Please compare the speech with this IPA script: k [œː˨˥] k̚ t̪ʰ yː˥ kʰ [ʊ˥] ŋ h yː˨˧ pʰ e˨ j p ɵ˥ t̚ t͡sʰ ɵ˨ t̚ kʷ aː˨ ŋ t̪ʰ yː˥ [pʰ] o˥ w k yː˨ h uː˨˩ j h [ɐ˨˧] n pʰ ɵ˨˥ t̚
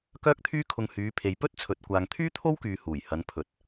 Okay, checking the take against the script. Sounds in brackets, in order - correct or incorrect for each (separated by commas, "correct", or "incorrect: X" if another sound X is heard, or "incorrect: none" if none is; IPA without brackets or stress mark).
incorrect: œː˥, incorrect: ʊ˧, incorrect: t̪ʰ, correct